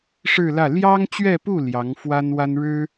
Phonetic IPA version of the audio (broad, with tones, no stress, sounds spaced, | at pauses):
ʂ ɻ̩˥˧ l ä˥˩ l j ɑ˥ ŋ t͡ɕ ɥ ɛ˥˧ p u˥˩ l j ɑ˧˥ ŋ f w a˥ n w a˥ n ɻ ɻ̩˥